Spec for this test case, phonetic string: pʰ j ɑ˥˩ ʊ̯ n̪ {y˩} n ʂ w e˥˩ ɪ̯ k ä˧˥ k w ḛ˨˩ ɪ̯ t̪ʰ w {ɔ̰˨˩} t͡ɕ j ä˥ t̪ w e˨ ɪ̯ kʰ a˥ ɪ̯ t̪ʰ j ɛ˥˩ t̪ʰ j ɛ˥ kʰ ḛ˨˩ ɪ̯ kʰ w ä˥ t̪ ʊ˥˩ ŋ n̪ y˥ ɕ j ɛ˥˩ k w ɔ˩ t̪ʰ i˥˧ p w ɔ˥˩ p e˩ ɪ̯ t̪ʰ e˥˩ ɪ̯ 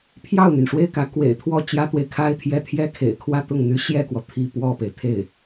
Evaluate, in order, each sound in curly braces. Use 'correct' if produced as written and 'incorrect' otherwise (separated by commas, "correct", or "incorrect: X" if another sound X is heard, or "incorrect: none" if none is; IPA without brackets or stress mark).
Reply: correct, incorrect: ɔ˥˩